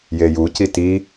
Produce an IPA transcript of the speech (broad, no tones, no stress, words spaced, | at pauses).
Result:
jejuci ti